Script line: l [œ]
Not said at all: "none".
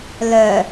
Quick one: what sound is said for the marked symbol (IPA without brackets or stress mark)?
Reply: œ